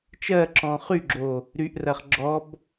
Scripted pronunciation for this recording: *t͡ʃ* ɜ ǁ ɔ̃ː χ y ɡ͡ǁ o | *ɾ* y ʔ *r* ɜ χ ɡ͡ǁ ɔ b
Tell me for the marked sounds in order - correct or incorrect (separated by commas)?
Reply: correct, correct, correct